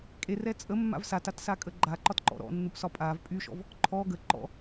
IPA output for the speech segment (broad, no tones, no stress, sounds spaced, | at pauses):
kʼ e r ɛ t͡sʼ ə mː a̰ v s a t a t s a kʼ ə ɡ͡ǃ a ǃ ɒ t ǃ ɔ̰ ɾ ɔ̰ nː u p s ɒ pʼ a v pʼ y ʃ ɔ̰ v | ǃʰ ɔ ɡ ə ǃ ɔ̰